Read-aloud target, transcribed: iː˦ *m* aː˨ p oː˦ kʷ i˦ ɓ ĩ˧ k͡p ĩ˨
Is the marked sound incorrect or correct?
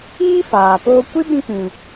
incorrect